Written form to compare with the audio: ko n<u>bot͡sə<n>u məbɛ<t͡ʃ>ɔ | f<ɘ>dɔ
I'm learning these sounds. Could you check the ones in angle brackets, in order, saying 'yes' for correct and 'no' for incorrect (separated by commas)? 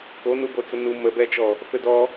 yes, yes, yes, yes